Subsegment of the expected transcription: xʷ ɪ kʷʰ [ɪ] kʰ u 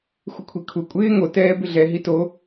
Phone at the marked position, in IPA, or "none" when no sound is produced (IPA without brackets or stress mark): i